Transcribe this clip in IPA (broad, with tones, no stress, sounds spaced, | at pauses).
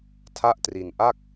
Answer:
tʰ a˥˩ ʔ t r i˧ n ʔ a˥˩ k̚